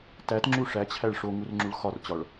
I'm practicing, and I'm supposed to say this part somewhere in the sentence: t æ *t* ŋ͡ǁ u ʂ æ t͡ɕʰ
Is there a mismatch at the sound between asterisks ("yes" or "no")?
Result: no